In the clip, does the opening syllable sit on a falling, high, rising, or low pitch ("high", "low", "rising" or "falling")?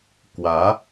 rising